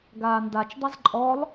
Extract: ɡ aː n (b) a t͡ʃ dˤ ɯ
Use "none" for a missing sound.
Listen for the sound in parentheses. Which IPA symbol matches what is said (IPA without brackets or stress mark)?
d